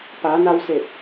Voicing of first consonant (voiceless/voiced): voiceless